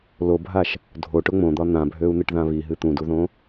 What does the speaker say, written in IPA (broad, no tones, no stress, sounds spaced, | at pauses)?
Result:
l o bʱ a ʃ | dʱ o ʈ ʊ ŋ͡m õ d̪ ɒ n̪ ã bʱ ø u̯ n̪ ɨ ʈ ð ã β i ɦ ɨ t̪ ũ d u ð õ